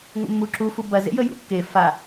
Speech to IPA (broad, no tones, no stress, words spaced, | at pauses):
ŋʷə̰mːuǁu fubɐ zḛjəjṵkːe fa